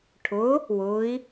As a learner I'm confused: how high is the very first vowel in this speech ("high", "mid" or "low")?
high